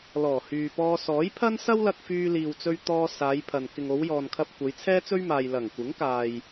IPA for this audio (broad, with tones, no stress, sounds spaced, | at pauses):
l ɔː˨˩ h yː˨ p ɔː˧ s ɔː˨˥ j pʰ ɐ˥ n s ɐ˥ w l ɐ˧ k̚ f yː˧ l iː˨ w t͡s ɵ˧ ɥ t̪ ɔː˧ s aː˨˧ j pʰ ɐ˨ n k ɪ˨ ŋ o˨˧ w j ɔː˨ n kʰ ɐ˧ p̚ kʷ ɐ˨˧ j t͡sʰ ɛː˥ t͡s ɵ˥ ɥ m aː˨ j l ɐ˨˩ ŋ kʷ ɪ˨˥ ŋ k aː˨ j